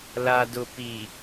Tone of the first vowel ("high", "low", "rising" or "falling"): low